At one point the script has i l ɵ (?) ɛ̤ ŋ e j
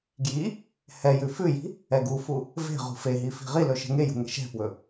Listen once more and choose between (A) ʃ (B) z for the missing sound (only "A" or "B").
A